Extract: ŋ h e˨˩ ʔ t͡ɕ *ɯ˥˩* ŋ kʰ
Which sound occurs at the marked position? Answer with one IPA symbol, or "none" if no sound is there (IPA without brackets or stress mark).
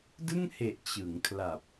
ɯ˩˦